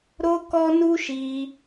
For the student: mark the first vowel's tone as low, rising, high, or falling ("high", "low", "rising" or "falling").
high